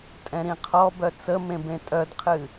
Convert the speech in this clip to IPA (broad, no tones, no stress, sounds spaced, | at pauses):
tʼ ɛ̃ ɾ ĩ qʰ ɔ b œ t͡s ə m ẽ b ẽ tʼ œ d qʰ ɨ